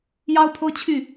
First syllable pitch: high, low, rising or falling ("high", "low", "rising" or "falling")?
high